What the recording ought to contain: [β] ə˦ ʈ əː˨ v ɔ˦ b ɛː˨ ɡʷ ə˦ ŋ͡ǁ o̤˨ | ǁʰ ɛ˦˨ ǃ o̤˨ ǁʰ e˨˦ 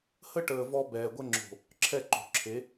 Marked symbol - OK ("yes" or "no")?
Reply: no